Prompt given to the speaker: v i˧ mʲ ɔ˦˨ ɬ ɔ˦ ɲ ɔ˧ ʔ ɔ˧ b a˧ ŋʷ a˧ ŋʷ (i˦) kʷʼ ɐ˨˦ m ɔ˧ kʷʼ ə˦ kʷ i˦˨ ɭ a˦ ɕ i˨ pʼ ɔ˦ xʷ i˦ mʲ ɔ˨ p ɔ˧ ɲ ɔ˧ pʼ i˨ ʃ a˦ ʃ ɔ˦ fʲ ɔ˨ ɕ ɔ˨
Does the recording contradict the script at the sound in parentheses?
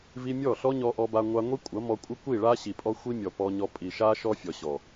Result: no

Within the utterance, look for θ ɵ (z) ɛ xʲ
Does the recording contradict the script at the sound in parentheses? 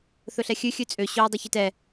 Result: yes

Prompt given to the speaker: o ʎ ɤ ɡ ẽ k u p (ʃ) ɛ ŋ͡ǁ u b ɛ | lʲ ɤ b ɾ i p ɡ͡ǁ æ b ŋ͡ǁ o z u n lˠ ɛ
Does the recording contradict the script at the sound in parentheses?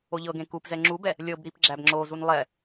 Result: yes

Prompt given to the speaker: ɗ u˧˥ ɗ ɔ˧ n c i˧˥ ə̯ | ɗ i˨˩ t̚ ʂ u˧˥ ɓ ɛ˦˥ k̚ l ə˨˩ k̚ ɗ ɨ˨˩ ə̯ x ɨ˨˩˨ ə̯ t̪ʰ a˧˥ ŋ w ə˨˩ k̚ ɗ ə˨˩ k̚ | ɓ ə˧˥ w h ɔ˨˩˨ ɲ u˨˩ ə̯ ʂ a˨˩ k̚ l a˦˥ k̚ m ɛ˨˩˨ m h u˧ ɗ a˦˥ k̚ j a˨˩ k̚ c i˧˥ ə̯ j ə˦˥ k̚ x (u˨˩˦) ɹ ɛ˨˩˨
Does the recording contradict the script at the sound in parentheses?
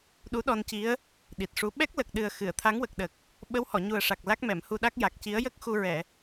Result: yes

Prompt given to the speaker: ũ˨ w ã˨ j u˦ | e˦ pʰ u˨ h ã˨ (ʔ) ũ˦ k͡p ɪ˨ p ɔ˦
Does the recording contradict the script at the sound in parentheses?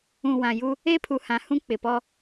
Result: yes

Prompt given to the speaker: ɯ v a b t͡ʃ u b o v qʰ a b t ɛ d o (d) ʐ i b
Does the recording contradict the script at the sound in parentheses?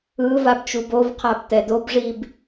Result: yes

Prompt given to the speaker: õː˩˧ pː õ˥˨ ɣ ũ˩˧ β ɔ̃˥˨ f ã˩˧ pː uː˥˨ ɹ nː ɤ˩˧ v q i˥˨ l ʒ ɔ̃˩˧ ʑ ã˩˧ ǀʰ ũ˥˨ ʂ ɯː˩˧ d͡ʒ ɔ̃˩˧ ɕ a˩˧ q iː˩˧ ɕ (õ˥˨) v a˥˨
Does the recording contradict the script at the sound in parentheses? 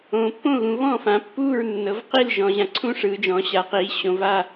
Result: yes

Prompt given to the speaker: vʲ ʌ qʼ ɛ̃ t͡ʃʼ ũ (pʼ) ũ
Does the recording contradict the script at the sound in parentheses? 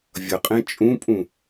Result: no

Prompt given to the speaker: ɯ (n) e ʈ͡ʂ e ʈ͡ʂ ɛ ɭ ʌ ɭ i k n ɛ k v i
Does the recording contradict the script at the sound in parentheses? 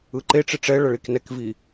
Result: yes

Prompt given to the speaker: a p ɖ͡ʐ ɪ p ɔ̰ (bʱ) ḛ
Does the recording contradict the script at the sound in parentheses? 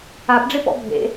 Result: no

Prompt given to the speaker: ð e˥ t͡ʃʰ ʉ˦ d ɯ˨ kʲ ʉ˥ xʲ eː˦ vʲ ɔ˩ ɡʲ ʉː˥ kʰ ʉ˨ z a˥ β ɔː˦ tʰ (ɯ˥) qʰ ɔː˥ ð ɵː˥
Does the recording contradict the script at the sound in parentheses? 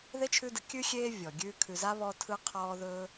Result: no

